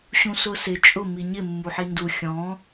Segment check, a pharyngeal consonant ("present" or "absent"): present